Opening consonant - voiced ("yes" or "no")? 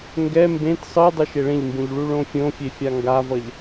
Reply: yes